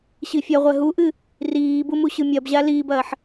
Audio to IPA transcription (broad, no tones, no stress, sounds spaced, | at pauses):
ɕ i fʲ ɐ ʁʷ ɛ ɦ u ʔ ɨ | r iː b u m u ɕ ɨ mʲ ɐ b ʑ a l iː b ɐː ħ